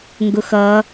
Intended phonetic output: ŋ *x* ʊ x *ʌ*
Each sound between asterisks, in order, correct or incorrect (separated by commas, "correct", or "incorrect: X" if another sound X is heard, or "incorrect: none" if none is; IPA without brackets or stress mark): incorrect: ɡ, correct